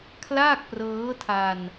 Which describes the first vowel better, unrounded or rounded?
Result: unrounded